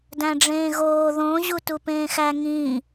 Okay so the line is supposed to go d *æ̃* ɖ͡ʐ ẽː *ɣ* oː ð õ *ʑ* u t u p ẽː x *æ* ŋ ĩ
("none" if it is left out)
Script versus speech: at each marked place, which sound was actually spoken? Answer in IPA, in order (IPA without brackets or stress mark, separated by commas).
æ̃, ɣ, ʑ, æ